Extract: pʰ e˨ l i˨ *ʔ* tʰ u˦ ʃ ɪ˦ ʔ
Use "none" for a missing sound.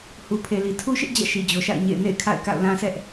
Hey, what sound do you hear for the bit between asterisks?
none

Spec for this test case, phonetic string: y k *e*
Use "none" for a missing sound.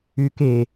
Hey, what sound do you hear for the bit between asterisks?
e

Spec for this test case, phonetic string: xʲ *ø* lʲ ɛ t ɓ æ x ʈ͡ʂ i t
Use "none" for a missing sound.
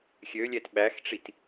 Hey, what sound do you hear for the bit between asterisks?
ø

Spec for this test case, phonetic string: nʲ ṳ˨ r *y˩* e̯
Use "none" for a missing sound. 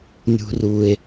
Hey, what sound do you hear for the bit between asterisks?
u˩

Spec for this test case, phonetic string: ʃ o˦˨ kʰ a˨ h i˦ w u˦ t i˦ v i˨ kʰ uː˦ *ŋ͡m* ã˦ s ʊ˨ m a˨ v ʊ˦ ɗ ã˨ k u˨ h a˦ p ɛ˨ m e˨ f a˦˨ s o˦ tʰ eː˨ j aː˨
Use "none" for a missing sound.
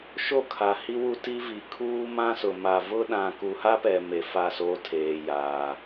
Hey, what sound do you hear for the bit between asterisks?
m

